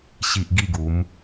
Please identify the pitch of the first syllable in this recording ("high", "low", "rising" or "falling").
low